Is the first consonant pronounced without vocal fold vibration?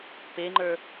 yes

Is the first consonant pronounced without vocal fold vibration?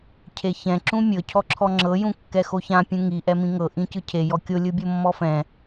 yes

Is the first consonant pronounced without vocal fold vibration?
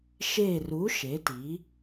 yes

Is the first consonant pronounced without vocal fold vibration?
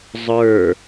no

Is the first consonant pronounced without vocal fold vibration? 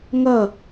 no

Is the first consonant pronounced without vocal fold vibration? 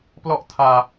yes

